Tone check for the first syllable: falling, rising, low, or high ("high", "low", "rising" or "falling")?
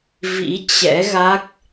rising